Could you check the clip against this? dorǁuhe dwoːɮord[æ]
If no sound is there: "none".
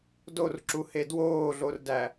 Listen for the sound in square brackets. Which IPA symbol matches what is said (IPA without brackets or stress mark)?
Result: æ